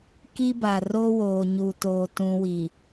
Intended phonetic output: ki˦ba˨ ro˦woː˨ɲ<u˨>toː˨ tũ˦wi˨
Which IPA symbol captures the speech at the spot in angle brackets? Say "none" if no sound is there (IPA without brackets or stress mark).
u˨